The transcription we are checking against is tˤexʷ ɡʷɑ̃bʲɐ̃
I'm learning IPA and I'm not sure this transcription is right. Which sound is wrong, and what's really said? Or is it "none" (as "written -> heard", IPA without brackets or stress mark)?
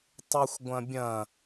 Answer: ɑ̃ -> ɐ̃